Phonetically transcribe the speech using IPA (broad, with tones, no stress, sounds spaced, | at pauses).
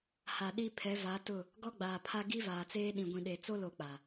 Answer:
h a˨ ɗ i˦ pʰ ɛ˨˦ v a˨˦ t ʊ˦˨ | ɡ ɔ˦ ɡ͡b aː˨ pʰ a˦ ɡ i˦ v aː˨ t͡s eː˦ ɗ ĩ˨ ɡʷ ĩ˨ ɗ e˨ t͡s o˦ l o˨ k͡p a˨